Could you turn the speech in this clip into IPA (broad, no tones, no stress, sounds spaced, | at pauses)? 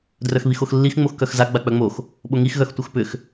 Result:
d r œ x β i x o x lː i x ŋ͡m o x k œ x z a ɡ͡b a k͡p œ ŋ͡m o x | ɓ o ŋ i x ɣ œ x tʷ œ x p ʏ x